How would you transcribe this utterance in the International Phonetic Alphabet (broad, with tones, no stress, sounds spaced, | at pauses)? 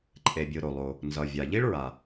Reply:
ǃʼ e˩ bʲ ɯ˩ ɾ o˩ lˠ o˩ | n z ʌ˩ vʲ a˩ ʎ i˥ ɭ ɹ a˩